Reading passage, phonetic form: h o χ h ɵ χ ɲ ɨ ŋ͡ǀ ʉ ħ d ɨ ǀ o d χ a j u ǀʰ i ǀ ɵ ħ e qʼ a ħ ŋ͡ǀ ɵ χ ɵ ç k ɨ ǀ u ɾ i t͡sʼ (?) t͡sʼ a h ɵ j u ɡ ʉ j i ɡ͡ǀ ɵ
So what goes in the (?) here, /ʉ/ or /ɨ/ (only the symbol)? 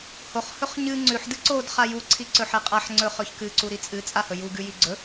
ɨ